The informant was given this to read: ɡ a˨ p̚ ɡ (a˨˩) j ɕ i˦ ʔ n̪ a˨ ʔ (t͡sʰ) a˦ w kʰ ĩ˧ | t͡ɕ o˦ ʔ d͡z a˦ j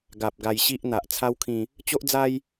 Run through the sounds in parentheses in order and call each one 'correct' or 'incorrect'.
incorrect, correct

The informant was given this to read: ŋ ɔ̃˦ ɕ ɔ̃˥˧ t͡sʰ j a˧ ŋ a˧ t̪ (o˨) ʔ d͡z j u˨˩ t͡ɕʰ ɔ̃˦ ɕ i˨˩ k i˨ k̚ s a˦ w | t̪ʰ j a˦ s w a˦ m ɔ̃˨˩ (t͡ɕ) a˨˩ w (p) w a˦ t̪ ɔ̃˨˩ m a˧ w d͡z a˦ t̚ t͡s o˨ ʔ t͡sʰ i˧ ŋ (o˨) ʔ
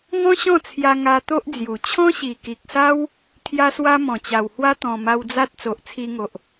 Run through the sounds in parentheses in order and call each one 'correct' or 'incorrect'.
incorrect, correct, incorrect, correct

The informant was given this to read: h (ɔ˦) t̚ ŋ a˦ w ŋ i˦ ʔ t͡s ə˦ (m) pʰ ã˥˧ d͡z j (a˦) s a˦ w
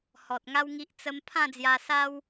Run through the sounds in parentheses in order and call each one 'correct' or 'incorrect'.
incorrect, correct, incorrect

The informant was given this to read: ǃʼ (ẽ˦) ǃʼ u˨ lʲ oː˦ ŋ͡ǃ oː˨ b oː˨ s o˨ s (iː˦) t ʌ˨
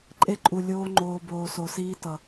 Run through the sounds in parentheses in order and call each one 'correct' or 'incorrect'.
incorrect, correct

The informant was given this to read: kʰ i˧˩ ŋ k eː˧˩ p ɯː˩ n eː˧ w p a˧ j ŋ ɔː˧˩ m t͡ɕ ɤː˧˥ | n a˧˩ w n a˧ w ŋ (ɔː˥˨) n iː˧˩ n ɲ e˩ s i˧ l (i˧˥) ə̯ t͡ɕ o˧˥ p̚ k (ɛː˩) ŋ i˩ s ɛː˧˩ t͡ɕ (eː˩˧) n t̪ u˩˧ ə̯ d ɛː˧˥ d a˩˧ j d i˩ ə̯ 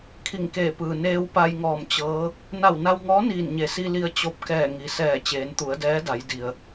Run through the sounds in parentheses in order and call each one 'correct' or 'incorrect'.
incorrect, incorrect, incorrect, correct

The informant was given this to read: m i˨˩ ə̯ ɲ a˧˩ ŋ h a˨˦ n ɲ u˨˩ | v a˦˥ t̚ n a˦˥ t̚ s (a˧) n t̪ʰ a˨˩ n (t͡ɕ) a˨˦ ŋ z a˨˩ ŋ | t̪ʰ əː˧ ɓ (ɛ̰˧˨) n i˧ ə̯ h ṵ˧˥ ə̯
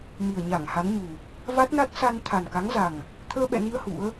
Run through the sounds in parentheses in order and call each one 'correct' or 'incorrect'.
correct, incorrect, correct

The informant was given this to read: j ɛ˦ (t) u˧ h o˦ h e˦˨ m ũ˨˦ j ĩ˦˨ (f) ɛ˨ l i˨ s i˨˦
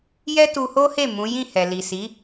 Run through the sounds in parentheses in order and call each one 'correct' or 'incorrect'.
correct, incorrect

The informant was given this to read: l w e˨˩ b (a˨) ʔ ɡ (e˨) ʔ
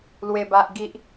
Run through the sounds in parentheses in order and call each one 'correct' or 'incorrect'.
correct, incorrect

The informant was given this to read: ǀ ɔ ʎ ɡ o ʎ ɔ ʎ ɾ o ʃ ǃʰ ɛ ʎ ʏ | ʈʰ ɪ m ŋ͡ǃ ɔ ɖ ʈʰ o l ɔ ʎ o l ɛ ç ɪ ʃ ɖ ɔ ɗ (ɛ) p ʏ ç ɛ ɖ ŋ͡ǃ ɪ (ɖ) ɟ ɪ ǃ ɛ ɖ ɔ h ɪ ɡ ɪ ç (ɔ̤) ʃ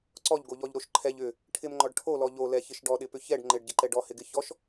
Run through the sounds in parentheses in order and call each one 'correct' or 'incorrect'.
incorrect, correct, incorrect

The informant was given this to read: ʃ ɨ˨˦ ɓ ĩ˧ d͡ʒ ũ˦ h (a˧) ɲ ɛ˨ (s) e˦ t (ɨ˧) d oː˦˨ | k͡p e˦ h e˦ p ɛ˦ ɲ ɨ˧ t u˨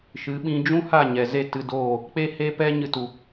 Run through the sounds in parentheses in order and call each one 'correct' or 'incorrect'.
incorrect, incorrect, correct

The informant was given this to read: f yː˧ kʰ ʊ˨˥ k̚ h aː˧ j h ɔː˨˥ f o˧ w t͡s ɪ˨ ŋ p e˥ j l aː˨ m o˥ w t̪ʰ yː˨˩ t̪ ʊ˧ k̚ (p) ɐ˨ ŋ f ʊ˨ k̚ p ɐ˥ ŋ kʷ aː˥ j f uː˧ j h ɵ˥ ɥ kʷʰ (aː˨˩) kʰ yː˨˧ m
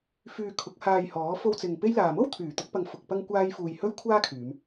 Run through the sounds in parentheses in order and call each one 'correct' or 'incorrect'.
correct, incorrect

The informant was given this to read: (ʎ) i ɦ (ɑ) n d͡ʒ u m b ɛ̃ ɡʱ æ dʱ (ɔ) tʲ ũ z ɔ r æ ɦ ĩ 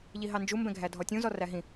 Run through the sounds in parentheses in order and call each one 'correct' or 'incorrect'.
correct, correct, correct

